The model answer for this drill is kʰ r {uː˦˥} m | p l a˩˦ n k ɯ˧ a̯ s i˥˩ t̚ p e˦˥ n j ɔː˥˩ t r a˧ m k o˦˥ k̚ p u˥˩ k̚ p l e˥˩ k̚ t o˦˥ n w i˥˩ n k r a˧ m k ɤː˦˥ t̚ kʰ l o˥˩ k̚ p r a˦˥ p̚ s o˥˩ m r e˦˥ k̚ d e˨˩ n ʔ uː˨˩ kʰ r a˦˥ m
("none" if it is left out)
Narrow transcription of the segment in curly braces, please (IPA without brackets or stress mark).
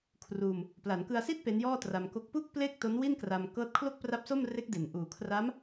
uː˧